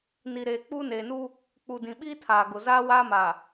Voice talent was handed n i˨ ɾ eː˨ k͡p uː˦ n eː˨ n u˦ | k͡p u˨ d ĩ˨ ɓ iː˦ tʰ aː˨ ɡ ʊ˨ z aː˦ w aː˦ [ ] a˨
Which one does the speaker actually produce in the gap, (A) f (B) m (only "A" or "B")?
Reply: B